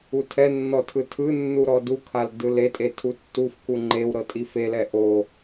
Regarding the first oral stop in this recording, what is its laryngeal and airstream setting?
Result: aspirated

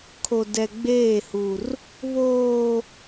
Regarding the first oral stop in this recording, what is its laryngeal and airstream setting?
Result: aspirated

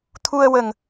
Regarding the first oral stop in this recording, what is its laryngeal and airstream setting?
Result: aspirated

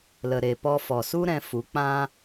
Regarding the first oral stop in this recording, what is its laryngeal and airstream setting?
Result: plain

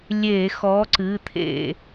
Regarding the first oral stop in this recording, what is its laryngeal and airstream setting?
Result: click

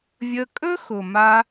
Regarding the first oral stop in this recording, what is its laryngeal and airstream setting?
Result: ejective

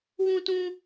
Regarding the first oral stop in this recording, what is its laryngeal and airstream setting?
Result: plain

